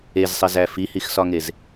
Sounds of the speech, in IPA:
ezsˤezæ fihixsɒŋez

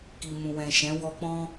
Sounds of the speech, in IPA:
ki˨mũ˨wɛ̃˨ ʃɛ̃˨˦ wɔ˧k͡pɔ̃˦

